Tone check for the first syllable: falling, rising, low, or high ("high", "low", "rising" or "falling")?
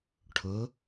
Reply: rising